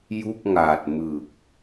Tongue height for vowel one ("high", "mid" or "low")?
high